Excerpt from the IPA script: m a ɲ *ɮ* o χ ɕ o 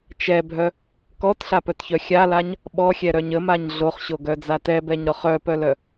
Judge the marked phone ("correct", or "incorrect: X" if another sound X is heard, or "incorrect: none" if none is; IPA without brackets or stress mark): correct